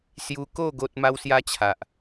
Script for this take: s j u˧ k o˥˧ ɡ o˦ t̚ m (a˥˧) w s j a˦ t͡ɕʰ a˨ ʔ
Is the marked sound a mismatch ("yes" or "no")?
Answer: yes